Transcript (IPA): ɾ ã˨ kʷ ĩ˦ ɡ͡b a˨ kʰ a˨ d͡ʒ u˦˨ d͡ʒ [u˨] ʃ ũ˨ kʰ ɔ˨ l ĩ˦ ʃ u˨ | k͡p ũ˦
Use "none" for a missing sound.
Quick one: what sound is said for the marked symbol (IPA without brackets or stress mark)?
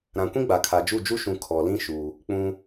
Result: u˦